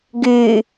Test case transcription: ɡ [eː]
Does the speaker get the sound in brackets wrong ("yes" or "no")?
yes